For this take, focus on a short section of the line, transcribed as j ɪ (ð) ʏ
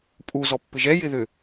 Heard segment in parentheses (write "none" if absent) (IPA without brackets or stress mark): ð